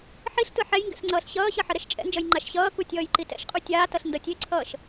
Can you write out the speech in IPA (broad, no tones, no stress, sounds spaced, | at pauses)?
ħ i ɬ t ɯ ħ ɛ j ŋ ɡ ɛ̰ ɬ ŋ͡ǀ ʌː ɬ ɕ ʌː ɕ ʌ ħ ʌ ɾ ɛ ʃ t͡ʃʼ ɛ̰ n d͡ʒ ʌ j ŋ͡ǃ a ʃ ɕ ʌː k u tʲ ʌː j ǃ i t ɛ̰ ʃ qʼ u tʲ aː t ʌ ɬ n d ʌ tʲ e ǀʰ ʌː ʃ